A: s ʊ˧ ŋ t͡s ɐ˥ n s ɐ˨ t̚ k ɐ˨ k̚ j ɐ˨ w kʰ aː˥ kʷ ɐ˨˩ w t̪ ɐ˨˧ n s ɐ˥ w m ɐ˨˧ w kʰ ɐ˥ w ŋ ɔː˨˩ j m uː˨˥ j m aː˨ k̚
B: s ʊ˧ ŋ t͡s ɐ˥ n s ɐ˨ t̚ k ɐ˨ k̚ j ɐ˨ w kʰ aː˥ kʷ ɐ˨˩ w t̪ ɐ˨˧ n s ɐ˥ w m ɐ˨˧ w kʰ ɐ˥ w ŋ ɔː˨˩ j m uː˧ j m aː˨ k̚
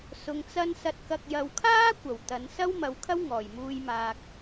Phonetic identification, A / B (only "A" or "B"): B